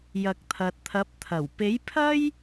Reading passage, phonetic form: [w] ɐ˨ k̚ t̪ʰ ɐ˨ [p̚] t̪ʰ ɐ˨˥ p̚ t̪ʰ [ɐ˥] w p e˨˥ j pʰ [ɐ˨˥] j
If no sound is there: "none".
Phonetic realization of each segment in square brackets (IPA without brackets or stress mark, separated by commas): j, t̚, ɐ˨˩, ɐ˥